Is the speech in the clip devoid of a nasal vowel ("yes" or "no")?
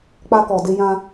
no